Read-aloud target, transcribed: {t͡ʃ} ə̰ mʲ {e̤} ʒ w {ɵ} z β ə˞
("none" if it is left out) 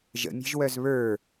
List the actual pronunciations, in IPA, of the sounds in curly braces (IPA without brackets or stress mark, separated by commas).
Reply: ʒ, e̤, œ